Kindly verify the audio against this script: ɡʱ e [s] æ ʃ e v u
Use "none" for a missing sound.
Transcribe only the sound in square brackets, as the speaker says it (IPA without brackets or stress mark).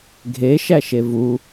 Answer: ʃ